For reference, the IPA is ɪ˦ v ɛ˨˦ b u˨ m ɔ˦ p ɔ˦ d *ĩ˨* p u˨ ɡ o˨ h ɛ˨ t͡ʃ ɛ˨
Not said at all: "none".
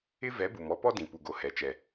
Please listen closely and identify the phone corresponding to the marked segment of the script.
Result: ĩ˨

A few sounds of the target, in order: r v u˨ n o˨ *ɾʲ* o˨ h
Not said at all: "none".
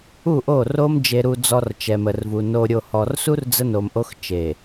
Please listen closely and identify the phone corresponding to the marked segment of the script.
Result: ɾʲ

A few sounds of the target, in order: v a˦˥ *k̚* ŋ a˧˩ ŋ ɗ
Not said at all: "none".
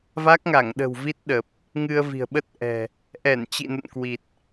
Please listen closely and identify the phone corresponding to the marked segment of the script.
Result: k̚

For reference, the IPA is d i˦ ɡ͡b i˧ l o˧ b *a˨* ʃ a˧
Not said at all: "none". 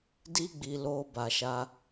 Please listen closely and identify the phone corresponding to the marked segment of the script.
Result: a˨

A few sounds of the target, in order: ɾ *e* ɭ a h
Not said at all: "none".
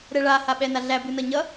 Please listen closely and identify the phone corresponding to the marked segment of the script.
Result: ɛ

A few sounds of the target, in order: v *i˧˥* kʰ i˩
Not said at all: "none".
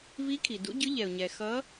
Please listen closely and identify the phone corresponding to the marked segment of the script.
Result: i˧˥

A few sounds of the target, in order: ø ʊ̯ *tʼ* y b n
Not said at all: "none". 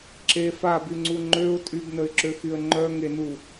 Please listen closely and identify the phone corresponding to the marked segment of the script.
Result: tʼ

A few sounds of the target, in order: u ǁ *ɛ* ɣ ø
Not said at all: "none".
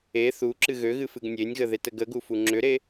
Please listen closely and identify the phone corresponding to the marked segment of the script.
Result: ɨ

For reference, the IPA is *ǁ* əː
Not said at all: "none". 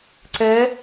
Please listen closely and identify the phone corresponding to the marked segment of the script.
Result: ǀ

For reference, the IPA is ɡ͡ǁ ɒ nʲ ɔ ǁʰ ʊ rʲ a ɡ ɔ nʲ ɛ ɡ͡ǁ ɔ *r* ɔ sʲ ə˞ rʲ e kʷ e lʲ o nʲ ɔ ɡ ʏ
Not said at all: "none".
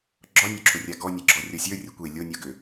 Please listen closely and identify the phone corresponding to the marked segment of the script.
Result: rʲ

